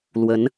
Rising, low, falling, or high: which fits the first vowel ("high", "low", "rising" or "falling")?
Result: rising